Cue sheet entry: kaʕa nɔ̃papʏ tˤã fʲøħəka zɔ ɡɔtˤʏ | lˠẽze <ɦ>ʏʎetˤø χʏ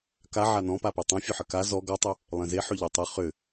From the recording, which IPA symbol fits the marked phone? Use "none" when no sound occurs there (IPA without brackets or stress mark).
ħ